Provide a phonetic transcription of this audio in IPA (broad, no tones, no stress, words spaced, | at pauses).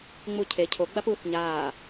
ŋ͡mucʰe cʰo ɡ͡bapuːθɲaː